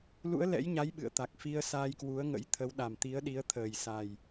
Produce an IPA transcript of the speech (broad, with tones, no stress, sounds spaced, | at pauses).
l ṵ˧˥ ə̯ l ɛ̰˧˥ j ɲ a˨˦ j ɓ ɨ̰˧˨ ə̯ t̪ a˨˩ k̚ f i˧ ə̯ s aː˧ j k w u˨˦ ə̯ ŋ ə̰˧˥ j t̪ʰ ə˨˦ w ɗ a˨˩ m t̪ i˨˦ ə̯ ɗ i˨˦ ə̯ t̪ʰ əː˨˩ j s a˨˩ j